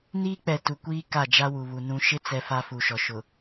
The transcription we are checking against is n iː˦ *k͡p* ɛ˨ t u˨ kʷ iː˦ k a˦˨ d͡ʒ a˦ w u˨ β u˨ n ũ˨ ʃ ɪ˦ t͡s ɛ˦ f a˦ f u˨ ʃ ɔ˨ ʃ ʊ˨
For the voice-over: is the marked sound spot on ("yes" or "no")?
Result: yes